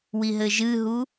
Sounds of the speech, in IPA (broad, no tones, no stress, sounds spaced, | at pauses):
w i ɦ ɘ ʒ ɨ ɦ u